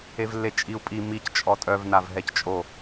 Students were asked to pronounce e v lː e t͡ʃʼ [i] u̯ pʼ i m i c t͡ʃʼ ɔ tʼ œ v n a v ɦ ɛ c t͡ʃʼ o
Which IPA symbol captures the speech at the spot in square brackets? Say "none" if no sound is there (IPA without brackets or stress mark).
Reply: i